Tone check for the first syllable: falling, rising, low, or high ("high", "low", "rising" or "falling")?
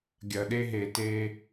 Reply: low